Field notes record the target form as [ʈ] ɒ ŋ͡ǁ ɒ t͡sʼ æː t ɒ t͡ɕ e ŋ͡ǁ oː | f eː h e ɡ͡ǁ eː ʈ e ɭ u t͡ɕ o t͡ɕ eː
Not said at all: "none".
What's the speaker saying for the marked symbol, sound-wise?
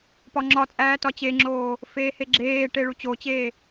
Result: p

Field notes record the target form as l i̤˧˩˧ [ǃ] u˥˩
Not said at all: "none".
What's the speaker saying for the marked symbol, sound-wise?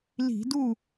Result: d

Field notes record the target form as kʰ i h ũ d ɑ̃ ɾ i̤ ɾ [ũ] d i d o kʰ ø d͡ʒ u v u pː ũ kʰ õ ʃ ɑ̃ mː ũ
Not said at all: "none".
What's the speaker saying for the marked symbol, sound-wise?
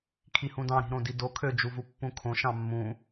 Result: õ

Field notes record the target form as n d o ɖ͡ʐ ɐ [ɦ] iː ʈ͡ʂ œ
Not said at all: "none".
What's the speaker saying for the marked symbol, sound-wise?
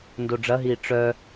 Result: ɦ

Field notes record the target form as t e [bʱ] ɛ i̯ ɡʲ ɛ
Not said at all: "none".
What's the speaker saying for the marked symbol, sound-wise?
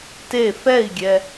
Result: f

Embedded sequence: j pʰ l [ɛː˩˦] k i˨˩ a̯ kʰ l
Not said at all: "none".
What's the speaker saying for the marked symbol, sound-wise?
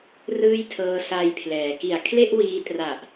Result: ɛː˩˦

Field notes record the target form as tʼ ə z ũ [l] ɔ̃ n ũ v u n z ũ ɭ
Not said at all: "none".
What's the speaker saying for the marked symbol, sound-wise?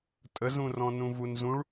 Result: r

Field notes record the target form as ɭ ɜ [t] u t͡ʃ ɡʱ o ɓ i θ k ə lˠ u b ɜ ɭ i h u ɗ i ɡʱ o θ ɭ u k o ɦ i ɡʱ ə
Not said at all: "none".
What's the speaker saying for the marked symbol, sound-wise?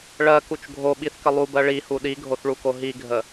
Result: k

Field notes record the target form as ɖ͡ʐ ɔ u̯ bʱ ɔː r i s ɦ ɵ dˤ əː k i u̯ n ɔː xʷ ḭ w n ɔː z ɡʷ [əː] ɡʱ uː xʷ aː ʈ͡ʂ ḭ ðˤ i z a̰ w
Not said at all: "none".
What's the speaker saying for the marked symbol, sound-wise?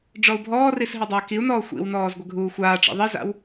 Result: ə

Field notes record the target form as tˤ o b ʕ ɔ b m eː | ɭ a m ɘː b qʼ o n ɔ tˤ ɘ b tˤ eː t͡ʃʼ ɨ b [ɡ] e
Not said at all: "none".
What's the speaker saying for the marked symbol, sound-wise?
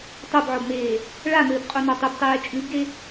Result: ɡ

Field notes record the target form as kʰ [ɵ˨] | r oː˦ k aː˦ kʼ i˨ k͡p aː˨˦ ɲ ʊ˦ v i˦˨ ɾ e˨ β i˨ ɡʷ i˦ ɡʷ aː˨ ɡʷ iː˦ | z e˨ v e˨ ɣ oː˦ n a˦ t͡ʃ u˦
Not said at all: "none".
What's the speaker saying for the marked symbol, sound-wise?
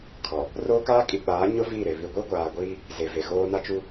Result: ɔ˨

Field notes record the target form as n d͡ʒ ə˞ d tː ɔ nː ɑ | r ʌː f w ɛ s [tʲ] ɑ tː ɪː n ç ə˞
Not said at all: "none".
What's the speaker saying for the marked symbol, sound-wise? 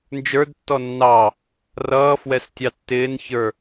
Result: tʲ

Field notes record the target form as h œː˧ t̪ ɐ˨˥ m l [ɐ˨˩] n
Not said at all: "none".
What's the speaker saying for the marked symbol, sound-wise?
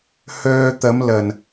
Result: ɐ˨˩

